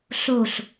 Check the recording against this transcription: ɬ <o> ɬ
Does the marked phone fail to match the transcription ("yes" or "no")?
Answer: no